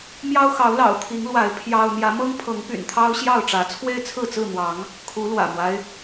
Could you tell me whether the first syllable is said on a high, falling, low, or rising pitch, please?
high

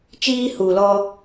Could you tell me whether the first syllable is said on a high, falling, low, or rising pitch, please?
high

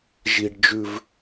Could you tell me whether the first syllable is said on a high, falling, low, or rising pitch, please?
low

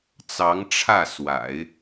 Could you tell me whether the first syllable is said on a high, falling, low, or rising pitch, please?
rising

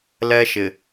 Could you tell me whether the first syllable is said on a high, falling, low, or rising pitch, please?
high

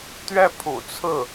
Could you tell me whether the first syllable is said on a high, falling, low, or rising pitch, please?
falling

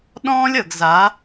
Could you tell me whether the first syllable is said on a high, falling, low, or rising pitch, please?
high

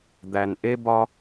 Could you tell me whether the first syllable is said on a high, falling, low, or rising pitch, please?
low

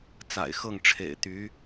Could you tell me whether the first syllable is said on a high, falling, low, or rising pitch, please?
low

